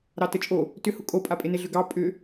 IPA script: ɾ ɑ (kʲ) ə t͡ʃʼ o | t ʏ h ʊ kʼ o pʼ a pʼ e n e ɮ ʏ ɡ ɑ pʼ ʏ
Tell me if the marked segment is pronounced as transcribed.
no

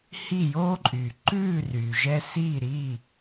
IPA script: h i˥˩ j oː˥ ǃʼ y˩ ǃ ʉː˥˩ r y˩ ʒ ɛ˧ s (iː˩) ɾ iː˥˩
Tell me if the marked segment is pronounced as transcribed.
no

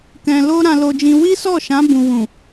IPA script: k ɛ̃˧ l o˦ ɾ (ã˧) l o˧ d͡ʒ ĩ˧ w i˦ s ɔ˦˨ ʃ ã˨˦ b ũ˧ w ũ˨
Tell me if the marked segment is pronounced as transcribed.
yes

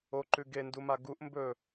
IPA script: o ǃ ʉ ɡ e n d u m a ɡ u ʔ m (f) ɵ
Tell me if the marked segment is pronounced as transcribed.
no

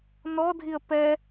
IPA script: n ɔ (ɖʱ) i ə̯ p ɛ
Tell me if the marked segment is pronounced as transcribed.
no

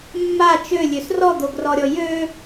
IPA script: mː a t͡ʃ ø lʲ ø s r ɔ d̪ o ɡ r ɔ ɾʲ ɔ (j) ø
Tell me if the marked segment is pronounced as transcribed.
yes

